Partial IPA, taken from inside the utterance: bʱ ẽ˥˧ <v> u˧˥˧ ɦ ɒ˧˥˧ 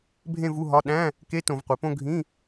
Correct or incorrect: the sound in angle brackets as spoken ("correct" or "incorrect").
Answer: correct